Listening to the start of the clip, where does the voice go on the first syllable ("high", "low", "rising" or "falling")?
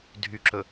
low